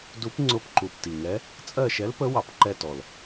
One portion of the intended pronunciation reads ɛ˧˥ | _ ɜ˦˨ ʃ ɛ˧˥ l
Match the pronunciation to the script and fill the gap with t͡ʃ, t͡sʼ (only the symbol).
t͡sʼ